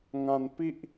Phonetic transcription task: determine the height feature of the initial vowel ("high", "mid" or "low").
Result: low